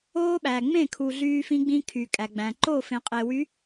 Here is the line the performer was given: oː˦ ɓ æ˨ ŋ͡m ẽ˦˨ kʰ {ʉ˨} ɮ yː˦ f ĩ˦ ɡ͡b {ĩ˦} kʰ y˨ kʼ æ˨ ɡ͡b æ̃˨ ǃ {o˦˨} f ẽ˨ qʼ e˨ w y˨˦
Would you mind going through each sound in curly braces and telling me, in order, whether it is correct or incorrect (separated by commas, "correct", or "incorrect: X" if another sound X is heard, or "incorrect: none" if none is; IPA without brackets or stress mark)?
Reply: incorrect: u˨, correct, correct